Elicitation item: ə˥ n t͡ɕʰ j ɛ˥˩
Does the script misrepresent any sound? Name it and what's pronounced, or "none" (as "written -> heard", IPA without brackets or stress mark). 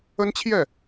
none